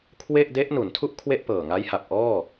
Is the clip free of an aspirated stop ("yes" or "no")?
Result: no